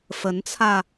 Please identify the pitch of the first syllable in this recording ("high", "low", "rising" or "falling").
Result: rising